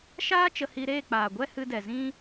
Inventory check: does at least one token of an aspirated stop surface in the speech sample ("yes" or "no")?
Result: no